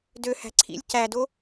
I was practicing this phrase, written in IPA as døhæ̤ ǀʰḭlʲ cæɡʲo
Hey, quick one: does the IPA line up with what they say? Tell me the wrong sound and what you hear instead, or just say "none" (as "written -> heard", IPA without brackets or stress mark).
ɡʲ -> d